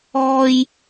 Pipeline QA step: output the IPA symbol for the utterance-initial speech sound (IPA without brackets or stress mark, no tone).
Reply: ɔː